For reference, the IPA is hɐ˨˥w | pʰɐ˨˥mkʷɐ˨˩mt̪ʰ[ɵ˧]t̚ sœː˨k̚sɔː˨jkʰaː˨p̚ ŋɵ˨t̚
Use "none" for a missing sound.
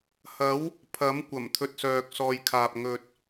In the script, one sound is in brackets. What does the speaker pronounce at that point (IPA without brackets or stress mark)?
ɵ˧